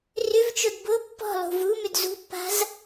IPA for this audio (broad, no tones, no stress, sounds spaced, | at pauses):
r ʏ v t͡ʃ o d b o pː ɔ̤ lˠ ṳ v u m ʏ d z ṳ pː a̤ z